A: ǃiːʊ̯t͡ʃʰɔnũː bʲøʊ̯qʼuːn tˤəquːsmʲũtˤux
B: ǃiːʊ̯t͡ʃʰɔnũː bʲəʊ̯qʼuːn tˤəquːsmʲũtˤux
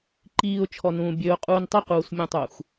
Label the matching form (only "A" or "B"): A